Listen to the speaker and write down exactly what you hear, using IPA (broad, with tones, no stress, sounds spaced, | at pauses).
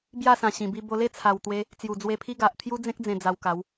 b j a˥˧ s ã˨˩ ɕ ĩ˨˩ b i˧ b o˧ l e˥˧ t͡sʰ a˨˩ w t̪ w e˧ | t͡s j u˨˩ d͡z w e˧ pʰ i˦ ɡ a˨ ʔ t̪ʰ j u˦ d͡z ẽ˦ k̚ d͡z ẽ˧ d͡z a˧ w k a˨˦ w